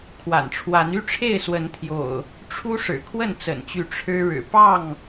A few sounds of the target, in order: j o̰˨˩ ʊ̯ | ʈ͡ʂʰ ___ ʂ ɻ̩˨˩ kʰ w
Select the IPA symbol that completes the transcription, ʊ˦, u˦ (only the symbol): u˦